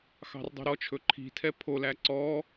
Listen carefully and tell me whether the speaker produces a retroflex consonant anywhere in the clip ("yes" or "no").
no